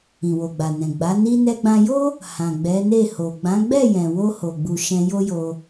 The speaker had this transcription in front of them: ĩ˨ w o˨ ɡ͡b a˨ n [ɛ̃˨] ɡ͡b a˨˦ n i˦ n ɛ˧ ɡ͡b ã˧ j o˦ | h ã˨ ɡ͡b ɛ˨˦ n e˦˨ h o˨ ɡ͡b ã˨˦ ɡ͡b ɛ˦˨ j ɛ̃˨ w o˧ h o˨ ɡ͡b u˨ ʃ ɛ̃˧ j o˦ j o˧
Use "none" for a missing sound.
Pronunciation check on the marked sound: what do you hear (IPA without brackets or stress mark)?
ɛ̃˨